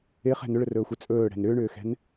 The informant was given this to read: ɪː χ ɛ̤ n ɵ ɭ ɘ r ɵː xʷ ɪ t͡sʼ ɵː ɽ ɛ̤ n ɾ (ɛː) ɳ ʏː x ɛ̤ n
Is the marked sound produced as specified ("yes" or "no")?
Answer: no